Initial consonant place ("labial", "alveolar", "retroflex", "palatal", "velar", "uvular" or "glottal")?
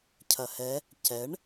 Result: palatal